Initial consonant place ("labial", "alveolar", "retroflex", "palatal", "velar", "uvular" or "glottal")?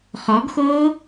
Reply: uvular